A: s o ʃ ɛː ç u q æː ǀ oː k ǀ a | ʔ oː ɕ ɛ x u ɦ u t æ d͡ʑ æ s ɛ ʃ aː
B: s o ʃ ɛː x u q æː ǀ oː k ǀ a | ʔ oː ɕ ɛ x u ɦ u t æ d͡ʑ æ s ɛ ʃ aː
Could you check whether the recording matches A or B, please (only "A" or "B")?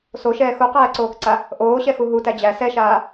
B